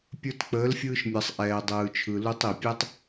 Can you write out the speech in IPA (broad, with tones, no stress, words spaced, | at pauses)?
pʲə˞˧tk͡pəː˨˦lfʲɯː˧ʃmʲɜ˨sˤ ʔɛː˧dˤɯː˧t͡ʃʰɯ˧ lu˧tˤi˨pʲɛ˦tˤ